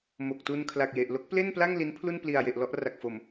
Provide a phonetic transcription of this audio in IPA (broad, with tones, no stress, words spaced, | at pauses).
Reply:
mo˨˩k̚tu˧n kʰla˨˩k̚je˨˩ʔlo˦˥k̚ ple˥˩npla˥˩ŋ li˦˥npʰlu˥˩n pli˨˩a̯je˨˩ʔ lɔ˥˩ʔra˨˩k̚fo˨˩m